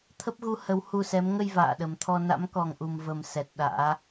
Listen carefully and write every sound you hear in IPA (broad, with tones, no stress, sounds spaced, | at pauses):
t̪ʰ ə˦˥ p̚ ɣ u˨˦ h ə˨˦ w h u˧ s ɛ˨˦ m ŋ ə˧ j v a̰ː˧˨ ɗ ə˨˩ m t̪ʰ ɔ˧ n a̰˧˥ m k ɔ˨˩ ŋ ʔ u˨˩ m v ə˨˩ m s ɛ˨˩ t̚ ɗ a̰ː˧˥